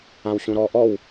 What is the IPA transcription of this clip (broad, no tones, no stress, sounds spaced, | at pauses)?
ã w ɕ ũ ɾ ɔ ʔ ɔ w